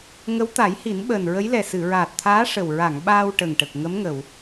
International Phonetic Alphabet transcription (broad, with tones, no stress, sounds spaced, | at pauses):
ŋ ə˧˥ w t̪ a˨˩˦ j h i˨˩˦ n ɓ əː˨˩ n ɹ ə˧˥ j l ɛ˨˩ s ɨ˨˩˨ ɹ aː˨˩ t̚ t̪ʰ aː˧˥ ʂ ə˨˩ w ɹ a˨˩˨ ŋ ɓ aː˧ w ʈ ə˨˩ ŋ ʈ ə˨˩ k̚ ŋ ə˧˥ m ŋ ə˨˩˨ w